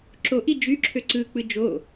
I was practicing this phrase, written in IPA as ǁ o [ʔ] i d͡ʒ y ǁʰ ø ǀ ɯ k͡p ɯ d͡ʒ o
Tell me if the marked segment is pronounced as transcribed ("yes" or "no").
yes